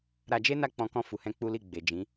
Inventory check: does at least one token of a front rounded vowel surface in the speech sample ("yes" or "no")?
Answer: no